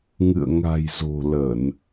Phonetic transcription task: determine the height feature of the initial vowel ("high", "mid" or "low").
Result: high